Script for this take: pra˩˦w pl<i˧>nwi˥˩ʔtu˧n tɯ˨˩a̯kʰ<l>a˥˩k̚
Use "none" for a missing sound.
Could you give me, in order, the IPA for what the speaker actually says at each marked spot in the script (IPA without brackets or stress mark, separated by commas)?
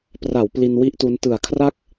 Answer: i˧, r